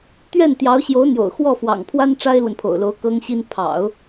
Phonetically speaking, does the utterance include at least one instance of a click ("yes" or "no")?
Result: no